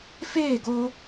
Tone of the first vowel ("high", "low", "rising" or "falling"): falling